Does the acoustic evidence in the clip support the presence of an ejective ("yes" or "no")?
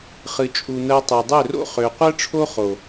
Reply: yes